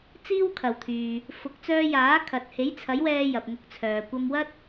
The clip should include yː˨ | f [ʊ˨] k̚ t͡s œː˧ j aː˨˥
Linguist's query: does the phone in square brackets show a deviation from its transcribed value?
yes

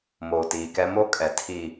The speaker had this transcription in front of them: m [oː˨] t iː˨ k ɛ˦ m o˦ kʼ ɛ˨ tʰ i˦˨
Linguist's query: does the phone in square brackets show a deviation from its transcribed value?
no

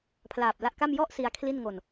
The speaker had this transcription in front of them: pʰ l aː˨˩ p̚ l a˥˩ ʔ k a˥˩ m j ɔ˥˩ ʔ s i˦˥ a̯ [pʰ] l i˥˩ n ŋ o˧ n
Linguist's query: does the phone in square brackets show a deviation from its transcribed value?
yes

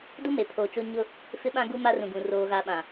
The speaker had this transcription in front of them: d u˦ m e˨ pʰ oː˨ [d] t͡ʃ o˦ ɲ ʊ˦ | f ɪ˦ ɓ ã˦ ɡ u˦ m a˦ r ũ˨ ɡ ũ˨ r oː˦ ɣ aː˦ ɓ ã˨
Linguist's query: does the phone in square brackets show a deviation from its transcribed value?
yes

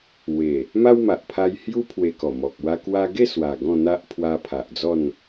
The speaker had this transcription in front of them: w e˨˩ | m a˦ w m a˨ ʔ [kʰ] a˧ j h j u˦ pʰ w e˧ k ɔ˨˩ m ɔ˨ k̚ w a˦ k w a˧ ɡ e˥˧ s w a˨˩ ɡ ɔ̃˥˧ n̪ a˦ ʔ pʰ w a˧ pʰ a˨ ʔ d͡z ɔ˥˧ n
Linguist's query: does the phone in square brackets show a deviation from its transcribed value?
yes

